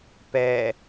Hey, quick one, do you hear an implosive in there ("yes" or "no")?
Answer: no